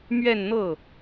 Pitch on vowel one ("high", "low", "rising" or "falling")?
falling